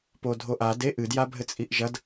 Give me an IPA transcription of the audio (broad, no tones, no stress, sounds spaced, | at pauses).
p o dʱ o ʔ a d e ʔ ɨ d j a bʱ ɘ t͡sʼ i ʔ ʒ ɐ d